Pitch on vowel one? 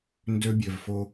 high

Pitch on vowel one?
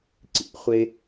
low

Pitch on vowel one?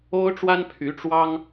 high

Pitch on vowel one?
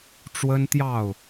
high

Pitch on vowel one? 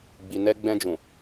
low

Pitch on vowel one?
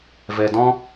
low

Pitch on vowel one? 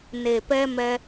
low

